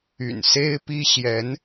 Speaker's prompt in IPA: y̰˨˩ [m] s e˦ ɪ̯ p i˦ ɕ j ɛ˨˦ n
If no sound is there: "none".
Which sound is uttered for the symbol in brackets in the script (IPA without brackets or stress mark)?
n